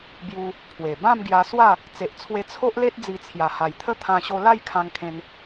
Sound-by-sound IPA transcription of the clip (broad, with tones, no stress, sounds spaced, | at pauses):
b j u˧ | pʰ w e˨˩ b ã˥˧ m ɡ j a˧ s w a˥˧ | t͡s e˨ ʔ t͡sʰ w e˧ t͡sʰ o˦ ʔ l e˦ t̚ d͡z i˧ t͡sʰ j a˨˩ h a˨˩ j t̪ʰ ə˥˧ t̪ʰ ã˧ ɕ o˧ l a˥˧ j kʰ ã˧ ŋ kʰ ẽ˧ n